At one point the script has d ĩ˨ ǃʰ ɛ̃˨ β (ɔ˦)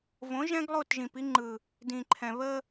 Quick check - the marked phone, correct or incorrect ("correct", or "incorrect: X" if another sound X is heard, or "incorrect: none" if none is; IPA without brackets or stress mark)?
incorrect: ə˦